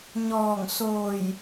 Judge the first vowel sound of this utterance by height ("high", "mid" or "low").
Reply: mid